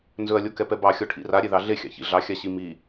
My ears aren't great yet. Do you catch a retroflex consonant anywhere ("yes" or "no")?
yes